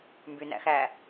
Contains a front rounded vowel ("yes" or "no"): yes